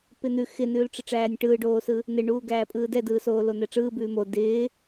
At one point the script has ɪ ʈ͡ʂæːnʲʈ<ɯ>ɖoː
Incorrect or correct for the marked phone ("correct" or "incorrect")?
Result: incorrect